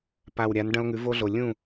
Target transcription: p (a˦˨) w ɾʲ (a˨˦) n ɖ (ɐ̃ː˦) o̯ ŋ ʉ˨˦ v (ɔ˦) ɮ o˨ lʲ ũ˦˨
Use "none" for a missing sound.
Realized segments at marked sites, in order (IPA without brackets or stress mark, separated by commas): a˨, a˨˦, ɐ̃˦, o˦